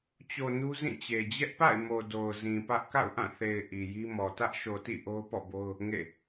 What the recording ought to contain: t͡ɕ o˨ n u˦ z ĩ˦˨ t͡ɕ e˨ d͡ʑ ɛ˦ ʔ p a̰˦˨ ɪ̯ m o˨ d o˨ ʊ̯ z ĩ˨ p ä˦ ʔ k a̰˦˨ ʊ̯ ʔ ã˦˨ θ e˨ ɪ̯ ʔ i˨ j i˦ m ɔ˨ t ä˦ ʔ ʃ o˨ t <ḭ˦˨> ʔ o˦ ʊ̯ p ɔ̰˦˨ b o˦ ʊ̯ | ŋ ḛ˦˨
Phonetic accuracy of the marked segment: correct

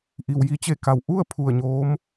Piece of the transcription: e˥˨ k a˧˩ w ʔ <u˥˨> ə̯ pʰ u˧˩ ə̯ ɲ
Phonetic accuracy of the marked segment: correct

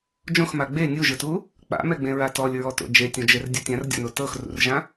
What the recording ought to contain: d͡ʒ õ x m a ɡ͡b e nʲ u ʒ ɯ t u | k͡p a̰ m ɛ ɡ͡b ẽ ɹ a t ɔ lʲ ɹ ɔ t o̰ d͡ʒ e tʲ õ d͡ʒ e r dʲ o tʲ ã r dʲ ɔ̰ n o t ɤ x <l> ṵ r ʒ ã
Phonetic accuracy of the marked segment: incorrect: r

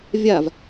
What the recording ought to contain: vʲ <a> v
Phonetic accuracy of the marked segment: correct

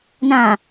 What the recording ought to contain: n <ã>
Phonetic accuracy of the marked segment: correct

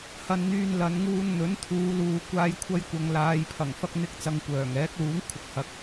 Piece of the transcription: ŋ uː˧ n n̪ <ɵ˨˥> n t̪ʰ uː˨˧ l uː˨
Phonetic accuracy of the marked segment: correct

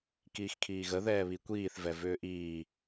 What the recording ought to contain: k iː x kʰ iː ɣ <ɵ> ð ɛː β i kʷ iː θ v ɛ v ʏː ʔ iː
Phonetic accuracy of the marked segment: incorrect: ə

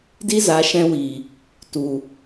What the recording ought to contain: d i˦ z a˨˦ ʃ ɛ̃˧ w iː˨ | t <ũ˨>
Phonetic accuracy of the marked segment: incorrect: u˨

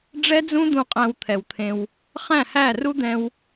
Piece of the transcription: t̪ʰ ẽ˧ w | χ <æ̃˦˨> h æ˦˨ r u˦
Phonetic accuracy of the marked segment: correct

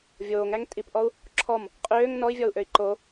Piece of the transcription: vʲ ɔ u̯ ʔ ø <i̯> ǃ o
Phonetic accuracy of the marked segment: correct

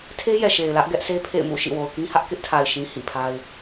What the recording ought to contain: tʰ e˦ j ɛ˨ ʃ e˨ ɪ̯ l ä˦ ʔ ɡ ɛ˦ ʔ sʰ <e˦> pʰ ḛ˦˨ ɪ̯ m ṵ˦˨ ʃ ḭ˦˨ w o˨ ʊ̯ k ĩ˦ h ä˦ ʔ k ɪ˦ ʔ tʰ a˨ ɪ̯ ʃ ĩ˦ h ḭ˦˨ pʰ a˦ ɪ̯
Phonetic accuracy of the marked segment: correct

